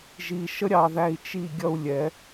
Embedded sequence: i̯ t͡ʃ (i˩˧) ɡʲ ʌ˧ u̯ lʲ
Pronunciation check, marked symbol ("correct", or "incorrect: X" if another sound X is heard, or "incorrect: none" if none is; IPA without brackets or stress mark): incorrect: i˧˩